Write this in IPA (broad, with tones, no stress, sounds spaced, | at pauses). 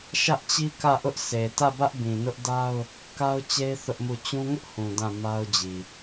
ʃ ä˦ ʔ t͡ɕ i˦ k ä˦˨ ʔ ʊ˦ ʔ s e˨ t ä˦˨ b ä˦ ʔ b ĩ˨ n ʊ˦ ʔ d a˦ ʊ̯ | k a˦ ʊ̯ t͡ɕ e˦ ɪ̯ θ ʊ˦ ʔ m u˦˨ t͡ɕ ũ˦ ŋ ʊ˦ ʔ h ũ˨ d ã˦˨ m a˦ ʊ̯ d͡ʑ i˨